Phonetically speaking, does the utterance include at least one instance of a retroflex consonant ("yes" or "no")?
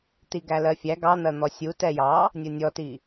no